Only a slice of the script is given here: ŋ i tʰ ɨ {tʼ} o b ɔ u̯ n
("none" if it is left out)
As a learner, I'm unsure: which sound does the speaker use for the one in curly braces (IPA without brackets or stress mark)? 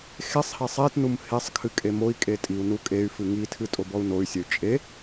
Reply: tʼ